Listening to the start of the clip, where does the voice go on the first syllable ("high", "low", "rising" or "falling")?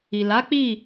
low